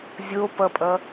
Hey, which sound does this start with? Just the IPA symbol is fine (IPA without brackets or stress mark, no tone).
zʲ